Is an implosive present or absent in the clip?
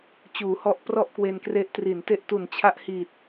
absent